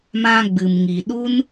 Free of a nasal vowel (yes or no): no